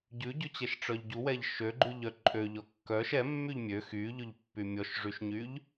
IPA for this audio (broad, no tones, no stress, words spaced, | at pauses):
ɟʉɟʉt͡ɕɛʃ ʈ͡ʂœʎɟuwɛʎ ʃøɡ͡ǃʉʎ œǃʼø ʎɔkːœʃ ɛ mːyʎmʲø xyʎɵʎ pːymʲɔʃʐyʃɲyʎ